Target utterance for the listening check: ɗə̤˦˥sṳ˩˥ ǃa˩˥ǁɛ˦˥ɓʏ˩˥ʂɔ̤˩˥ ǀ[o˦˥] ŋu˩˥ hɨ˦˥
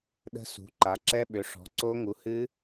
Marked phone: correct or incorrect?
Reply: correct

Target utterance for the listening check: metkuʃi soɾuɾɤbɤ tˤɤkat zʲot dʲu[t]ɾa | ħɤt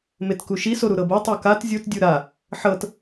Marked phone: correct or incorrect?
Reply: incorrect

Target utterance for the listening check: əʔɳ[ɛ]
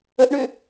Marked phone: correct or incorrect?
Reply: incorrect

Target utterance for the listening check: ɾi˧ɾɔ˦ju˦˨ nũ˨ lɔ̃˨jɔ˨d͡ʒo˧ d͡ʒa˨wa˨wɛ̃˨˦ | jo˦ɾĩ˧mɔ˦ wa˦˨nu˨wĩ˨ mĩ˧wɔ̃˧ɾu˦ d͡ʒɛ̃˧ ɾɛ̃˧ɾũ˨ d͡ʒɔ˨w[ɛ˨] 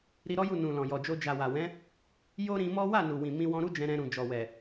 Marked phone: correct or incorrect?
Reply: correct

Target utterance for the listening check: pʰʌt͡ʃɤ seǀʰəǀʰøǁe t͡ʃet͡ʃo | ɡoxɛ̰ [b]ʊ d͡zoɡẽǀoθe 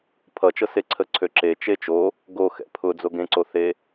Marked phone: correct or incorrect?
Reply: incorrect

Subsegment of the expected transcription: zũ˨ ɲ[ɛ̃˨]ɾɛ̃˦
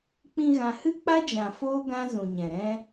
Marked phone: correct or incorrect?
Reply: correct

